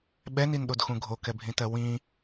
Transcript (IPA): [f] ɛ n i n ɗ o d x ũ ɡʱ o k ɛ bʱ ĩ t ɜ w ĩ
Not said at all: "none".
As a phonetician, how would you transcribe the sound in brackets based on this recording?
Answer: ɓ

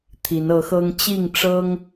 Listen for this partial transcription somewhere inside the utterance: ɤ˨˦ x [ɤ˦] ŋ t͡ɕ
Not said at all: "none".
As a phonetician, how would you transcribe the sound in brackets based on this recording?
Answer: ɤ˦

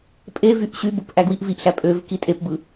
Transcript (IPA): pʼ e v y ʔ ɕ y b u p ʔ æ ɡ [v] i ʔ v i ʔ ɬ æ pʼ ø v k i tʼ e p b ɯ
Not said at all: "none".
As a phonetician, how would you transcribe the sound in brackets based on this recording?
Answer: w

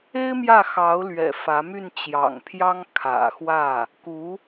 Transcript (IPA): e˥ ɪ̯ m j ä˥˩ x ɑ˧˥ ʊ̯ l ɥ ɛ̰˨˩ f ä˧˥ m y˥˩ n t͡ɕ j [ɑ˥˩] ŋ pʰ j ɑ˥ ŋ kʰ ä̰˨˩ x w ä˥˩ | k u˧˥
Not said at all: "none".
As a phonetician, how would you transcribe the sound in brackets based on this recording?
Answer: ɑ̰˨˩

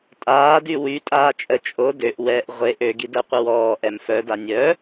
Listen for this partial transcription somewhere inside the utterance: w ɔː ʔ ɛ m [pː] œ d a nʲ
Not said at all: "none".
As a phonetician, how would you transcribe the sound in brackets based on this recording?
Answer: f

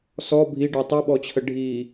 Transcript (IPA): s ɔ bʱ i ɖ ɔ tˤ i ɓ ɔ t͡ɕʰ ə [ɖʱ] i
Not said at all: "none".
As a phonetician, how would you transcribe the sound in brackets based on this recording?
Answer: ɖʱ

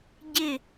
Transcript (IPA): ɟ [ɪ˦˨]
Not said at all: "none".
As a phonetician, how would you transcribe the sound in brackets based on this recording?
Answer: ɪ˦˨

